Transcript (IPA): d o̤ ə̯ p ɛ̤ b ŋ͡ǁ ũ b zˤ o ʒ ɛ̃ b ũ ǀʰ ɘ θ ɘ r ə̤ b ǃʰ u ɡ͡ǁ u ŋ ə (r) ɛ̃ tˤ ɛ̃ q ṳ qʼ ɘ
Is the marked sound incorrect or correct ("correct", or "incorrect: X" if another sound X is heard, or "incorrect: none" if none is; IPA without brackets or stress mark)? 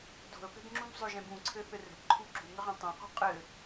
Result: incorrect: ʁ